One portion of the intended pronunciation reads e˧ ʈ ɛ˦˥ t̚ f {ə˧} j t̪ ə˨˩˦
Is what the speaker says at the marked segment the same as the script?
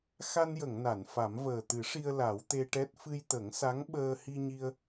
no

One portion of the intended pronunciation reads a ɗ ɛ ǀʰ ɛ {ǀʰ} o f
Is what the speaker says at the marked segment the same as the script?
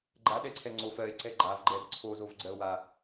no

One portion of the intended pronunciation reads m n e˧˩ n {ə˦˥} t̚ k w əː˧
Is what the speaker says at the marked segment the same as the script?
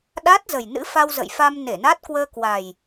no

